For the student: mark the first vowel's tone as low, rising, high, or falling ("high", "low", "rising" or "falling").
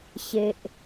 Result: low